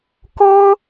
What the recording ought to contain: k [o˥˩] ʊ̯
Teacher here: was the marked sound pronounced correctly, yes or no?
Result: no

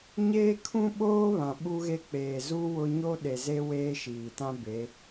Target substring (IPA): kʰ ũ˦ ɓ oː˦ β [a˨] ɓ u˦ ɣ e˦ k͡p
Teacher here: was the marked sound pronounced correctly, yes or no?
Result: no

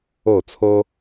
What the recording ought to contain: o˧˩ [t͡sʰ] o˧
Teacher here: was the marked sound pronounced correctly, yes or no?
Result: yes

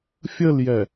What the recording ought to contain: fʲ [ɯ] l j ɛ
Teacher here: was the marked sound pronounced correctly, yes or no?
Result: no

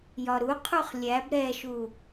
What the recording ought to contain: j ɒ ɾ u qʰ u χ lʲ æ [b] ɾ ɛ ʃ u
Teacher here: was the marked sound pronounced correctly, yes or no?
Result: yes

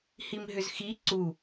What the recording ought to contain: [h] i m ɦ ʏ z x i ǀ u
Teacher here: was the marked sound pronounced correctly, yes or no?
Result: yes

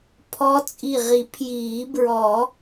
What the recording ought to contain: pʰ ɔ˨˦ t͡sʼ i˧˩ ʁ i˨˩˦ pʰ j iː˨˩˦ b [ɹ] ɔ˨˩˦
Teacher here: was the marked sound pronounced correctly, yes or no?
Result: yes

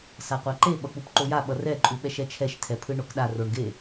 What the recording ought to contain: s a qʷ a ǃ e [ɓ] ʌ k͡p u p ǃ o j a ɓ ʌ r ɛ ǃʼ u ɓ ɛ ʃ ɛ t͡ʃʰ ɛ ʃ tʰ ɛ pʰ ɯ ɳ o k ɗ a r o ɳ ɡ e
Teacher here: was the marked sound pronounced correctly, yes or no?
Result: yes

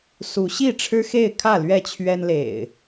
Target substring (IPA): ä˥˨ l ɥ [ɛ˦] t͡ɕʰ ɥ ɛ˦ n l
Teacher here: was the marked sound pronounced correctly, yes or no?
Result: no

